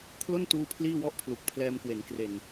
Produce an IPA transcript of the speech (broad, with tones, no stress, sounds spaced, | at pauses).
kʰ l o˥˩ n t uː˧ pʰ l iː˥˩ w ɔ˥˩ ʔ pʰ l u˨˩ k̚ pʰ l ɛː˧ m k w e˩˦ n k r e˨˩ n